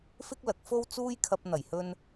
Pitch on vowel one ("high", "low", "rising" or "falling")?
high